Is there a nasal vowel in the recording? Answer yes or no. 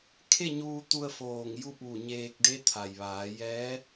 no